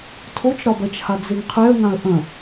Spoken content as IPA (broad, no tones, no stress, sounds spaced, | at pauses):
tʰ o t͡ʃ ɾ ɒ b ɜ t͡ʃ h a d͡z e ŋ qʰ e ə̯ ŋ ã ə̯ ʔ ə̃